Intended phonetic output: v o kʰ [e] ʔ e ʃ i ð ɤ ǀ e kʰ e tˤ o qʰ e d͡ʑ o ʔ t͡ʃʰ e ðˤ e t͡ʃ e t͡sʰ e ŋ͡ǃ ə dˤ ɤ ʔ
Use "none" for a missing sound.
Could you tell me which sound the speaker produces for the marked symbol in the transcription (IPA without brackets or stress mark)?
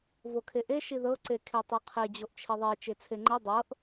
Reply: e